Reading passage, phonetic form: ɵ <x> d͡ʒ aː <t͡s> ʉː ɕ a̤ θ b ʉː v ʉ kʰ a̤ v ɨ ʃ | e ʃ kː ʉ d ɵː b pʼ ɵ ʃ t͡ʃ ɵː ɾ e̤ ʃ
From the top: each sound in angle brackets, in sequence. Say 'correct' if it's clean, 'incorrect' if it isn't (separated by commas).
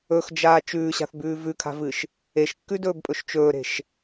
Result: correct, incorrect